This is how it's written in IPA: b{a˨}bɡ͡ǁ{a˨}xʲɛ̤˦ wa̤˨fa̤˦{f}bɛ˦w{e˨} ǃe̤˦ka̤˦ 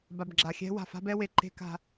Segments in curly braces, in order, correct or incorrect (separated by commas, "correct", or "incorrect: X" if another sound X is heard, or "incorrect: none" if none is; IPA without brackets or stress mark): correct, correct, incorrect: none, correct